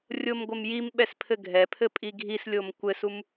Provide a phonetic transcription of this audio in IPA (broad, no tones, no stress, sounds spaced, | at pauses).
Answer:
rʲ o m ɡʷ ɘ m j i m ɓ ɛ s pʰ ɘ ɡʱ ɛ pʰ ɘ pʼ i ɡʱ i s lʲ o m kʷ ɘ s u m